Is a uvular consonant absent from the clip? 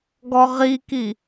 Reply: no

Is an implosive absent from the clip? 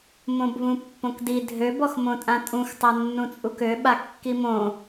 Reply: no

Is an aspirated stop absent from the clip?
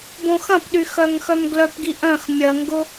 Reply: yes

